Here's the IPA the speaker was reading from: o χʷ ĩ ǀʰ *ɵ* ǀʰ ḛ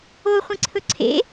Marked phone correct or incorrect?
correct